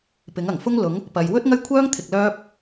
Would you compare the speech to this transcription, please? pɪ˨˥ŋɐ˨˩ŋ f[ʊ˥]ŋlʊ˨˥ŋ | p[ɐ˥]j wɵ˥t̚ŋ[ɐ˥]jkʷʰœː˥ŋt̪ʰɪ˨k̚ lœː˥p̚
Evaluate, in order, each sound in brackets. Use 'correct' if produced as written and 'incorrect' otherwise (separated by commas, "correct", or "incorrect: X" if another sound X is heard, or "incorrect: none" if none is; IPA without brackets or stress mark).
correct, incorrect: ɐ˧, correct